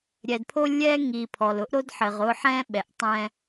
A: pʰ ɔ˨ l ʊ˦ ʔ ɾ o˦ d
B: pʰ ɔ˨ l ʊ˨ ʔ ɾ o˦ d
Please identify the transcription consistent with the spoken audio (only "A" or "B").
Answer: A